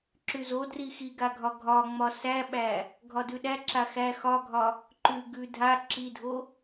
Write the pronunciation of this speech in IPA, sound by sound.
ǁ ʉ z o d r i x i ɡ a ɡʱ ɒ ɡʱ ɒ ŋ͡m ɒ s æ ɓ æ | ɡʱ ɒ d ʉ ɗ æ ǁ a x æ x ɒ ɡʱ ɒ | ǃ ʉ ɡ ʉ dʱ a ǁ i dʱ o

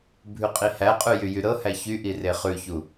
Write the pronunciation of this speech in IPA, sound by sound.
bʱ ʉ qʼ i h æ qʼ ʉ j y j y ɾ ɤ h æ ç y ʔ i r e χ ʉ ç u

